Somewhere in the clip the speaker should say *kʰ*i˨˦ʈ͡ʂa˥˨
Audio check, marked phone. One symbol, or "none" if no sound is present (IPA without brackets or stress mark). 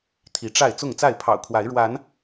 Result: t̪ʰ